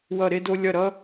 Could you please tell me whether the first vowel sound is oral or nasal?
oral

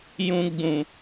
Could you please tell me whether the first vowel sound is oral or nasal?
nasal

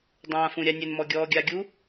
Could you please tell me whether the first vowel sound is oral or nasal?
nasal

